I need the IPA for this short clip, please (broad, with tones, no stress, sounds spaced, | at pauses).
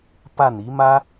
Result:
p a˥˩ n i˧˥ m ä˥